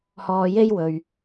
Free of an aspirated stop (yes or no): yes